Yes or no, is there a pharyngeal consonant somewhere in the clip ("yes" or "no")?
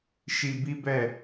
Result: no